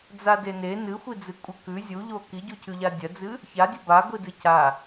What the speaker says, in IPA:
d͡zadene nɨxʷid͡zɨ kʷʼɨkʉ zʲuʎo kiɟucʰʉʎa dʲɐd͡zɨ | çadʲɐ ba ɡʷidɨcʰa

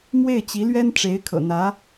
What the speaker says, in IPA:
mwe˥˩ɪ̯t͡ɕi˧˥lɥɛ˥n ʈ͡ʂe˧˥ɪ̯kʰɤ̰˨˩n̪ä˧˥

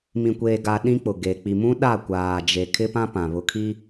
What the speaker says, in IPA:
mĩ˨kʷeː˨ɡa˨ ɗĩ˦k͡pʊ˨ɡe˨ k͡pi˨mũ˦ ɗa˦˨kʷaː˨d͡ʒe˨ kʰɪ˦pã˦pã˨ βʊ˨kʰi˦

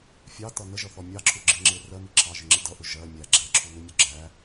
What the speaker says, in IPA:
fʲɑtʌ nəʒʌθɔ mʲɑǁʰuɡ͡ǁɪ ŋ͡ǁɪ rɜmi ǁʰɑʒɪŋ͡ǁɪ dʌʔʊ ʒɜ mʲæ ɡ͡ǁɛǁʰunumʲu ɡ͡ǁæ

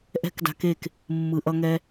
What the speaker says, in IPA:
ʔɛ̤˦kda̤˧ke˦˨k | mːɯ˧ʔʌ˦ŋɛ˦

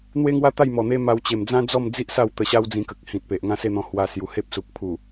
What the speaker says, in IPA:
n̪we˦ŋwa˦t̪a˥˧j mɔ˨˩n̪e˦ ma˧wt͡ɕe˨˩m d͡zã˦d͡zɔ˥˧md͡zi˦ʔ sa˥˧wt̪ə˧ɕa˦w d͡zĩ˧kə˨k̚hĩ˨t̚pe˨ʔ ŋã˥˧se˥˧n̪ɔ̃˧ hwa˧sju˨˩he˦p̚su˨k̚ pʰu˨˩

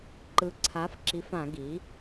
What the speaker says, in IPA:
ǃɯ˩˥ǀʰa˩˥fǁi˩˥fã˧˩˧ ɡi˩˥

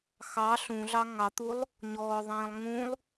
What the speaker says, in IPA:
xɑ ɬũɮɑ ŋɑt̪ulˠ | ɲɔːðˤĩːlˠ ŋũlˠ

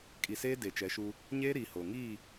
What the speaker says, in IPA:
kʼi˨seː˦ de˨t͡ʃɛ˨˦ʃu˦ | ɲeː˦ɾiː˨ ho˨ ŋiː˦˨

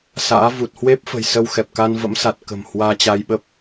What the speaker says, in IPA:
sa̰ː˧˥ vu˨˩t̚hwe˦˥p̚fə̤˨˩j sə˧wxɛ˨˩p̚ka˧n və̰˧˥msa˨˩t̚kə̤˨˩mhwaː˧ t͡ɕa˧jɓə˦˥p̚

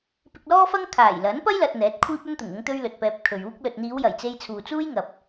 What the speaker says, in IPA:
pɪ˧k̚lɔː˥fɐ˥ŋ kʰaː˨˩jlɐ˨˥n pɐ˥jlɐ˨t̚ n̪ɛː˨˥t̚kʷʰiː˥p̚ ɵ˥nt̪ʊ˨˩ŋ ʊ˥ŋt̪ɵ˥ɥlɵ˨t̚pɛː˧p̚ kʰɵ˨ɥuː˥k̚ lɵ˨t̚n̪iː˨˧wjɐ˨˩j t͡se˧jt͡sʰuː˨t͡suː˥jŋɐ˨p̚

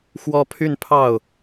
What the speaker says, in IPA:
xwɔ˥pʰy˥˧n pʰɑ˥˩ʊ̯

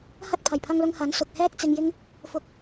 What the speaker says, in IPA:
hɐ˧t̚pʰɐ˨˩jpʰɐ˨ŋlʊ˨ŋ hɐ˨˥nsʊ˨k̚ hɛː˥k̚t͡sɪ˧ŋjɪ˥ŋ | fʊ˧k̚

